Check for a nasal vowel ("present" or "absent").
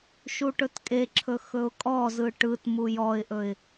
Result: absent